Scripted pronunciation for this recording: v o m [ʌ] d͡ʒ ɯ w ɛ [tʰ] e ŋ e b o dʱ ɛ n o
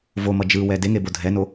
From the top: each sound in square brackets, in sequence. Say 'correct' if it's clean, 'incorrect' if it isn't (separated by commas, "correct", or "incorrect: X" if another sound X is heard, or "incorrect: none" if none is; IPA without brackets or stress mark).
correct, incorrect: d